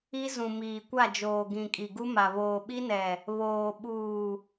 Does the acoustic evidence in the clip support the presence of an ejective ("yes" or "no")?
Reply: yes